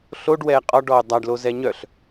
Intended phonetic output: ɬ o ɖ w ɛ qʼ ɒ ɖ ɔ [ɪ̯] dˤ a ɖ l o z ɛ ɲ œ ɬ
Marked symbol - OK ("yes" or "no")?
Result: no